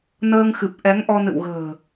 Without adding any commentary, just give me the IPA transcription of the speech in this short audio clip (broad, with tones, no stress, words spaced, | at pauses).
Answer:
nəː˧ŋxɨ˨˩p̚ ʔɛ˨˦ŋʔɔ˧ nɨ̰˧˨wɣə̤ː˨˩